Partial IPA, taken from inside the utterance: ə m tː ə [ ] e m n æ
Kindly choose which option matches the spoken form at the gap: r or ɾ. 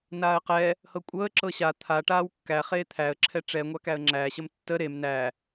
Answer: ɾ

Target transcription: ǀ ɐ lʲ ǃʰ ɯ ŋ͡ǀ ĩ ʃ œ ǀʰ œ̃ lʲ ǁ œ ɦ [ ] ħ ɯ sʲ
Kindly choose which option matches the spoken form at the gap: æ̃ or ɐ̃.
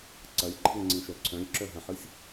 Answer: ɐ̃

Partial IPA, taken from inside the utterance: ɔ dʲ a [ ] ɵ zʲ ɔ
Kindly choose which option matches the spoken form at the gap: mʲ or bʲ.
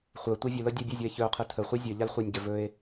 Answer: bʲ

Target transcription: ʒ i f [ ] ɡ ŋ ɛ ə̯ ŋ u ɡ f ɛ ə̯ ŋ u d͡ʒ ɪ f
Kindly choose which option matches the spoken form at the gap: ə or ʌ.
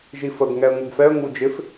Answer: ə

